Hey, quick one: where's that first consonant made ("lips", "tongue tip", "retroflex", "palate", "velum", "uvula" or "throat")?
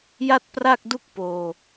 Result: palate